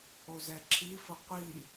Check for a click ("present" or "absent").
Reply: present